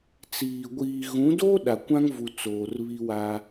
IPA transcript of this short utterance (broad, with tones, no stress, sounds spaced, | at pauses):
t͡s iː˨ ɡʷ iː˨ ɣ ũ˨˦ d o˦ ɗ a˨ kʷ ã˦ ŋ v u˨ t͡s oː˨ r β i˦ w a˦